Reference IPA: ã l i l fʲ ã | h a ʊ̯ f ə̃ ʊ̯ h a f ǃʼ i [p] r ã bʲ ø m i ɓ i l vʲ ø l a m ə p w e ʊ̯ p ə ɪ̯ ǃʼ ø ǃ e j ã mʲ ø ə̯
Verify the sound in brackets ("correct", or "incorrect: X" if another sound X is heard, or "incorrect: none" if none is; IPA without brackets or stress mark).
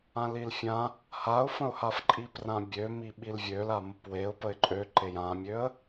correct